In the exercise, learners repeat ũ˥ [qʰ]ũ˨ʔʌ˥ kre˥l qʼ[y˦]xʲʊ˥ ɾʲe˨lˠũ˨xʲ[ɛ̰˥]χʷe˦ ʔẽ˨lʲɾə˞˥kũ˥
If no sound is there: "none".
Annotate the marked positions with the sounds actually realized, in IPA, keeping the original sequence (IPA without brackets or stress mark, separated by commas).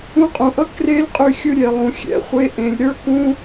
qʼ, y˦, ɛ̰˥